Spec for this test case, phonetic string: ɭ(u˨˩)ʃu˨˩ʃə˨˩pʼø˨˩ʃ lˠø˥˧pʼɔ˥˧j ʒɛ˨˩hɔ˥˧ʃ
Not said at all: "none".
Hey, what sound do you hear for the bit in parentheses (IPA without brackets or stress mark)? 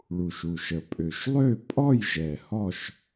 u˨˩